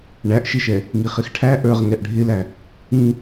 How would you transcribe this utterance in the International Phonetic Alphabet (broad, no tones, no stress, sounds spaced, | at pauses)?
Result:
ɳ æ ʔ ʃ ɪ ʃ ɛ | ŋ i χ ɪ x ʈʰ æ ʔ ə˞ ʁ ŋ ɛ ʔ ɖʱ ɪ l æ | ĩ